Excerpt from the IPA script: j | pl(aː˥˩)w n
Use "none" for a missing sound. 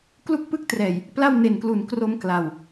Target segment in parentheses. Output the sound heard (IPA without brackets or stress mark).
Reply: a˥˩